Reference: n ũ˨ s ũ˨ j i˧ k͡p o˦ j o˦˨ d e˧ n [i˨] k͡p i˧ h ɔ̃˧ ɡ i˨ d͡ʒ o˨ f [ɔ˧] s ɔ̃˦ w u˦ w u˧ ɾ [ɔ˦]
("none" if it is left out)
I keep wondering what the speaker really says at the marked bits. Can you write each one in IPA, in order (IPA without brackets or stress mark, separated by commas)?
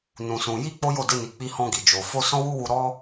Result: i˨, o˧, ɔ˦